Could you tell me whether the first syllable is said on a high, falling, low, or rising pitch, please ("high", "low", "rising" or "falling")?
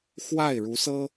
falling